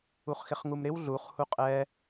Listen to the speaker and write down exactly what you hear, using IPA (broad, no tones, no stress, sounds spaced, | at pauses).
u χ x ɪ χ ŋ u m ɾ ɪ w ɮ u χ h u qʼ ɛ